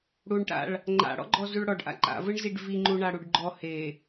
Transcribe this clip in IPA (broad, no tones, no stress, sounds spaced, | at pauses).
ɽ u ɳ ʈ a̰ ɭ | ŋ͡ǃ a̰ ɽ ɔ̰ ɡ͡ǃ ɔ z u ɭ ɽ ɔ ɖ ʔ a̰ ǃ a̰ v ɯ ɳ z i ɖ v i ŋ͡ǃ u ɳ a ɽ u ɖ ɡ͡ǃ ɔ h e